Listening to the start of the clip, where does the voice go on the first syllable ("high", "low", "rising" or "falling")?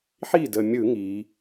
falling